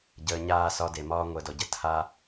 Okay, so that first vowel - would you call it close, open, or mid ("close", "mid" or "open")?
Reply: mid